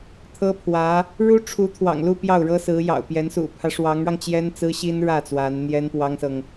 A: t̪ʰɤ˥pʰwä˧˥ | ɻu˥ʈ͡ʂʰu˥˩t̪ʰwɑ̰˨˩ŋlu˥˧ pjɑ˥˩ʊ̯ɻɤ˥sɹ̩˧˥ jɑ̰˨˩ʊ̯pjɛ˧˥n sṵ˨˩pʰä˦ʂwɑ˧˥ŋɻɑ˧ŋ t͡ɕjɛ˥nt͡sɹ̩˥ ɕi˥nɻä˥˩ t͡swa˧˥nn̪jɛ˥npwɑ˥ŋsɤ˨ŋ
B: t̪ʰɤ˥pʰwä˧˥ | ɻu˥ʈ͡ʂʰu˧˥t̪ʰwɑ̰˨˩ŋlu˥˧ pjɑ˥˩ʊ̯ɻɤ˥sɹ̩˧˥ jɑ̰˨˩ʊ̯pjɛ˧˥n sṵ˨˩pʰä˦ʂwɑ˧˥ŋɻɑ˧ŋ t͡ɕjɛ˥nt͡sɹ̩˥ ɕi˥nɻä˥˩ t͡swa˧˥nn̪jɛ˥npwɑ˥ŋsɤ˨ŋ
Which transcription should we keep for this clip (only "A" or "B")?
B